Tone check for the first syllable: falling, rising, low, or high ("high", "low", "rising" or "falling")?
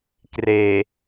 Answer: low